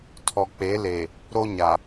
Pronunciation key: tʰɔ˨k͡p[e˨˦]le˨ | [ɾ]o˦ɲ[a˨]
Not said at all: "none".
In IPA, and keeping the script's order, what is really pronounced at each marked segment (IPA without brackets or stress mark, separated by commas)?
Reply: e˨˦, ɾ, a˨